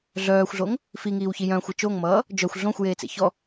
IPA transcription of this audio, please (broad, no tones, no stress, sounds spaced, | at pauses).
ɮ œː xʷ ɮ o ŋ | f i ŋ iː w ç i j œ̃ xʷ ɛ t͡ʃ o ŋ m ʌː | d͡ʒ œ xʷ ɮ õ xʷ j eː t͡s ḛ ç ɔ